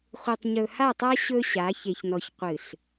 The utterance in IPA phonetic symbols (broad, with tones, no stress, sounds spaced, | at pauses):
χʷ e˨ tˤ ɲ ɵ˨ h a˦˨ tˤ a˦ ɕ ɵ˦ ɕ a˨˦ ç e˨ ç n ɔ˨ ç qʷ ɨ˨ ɬ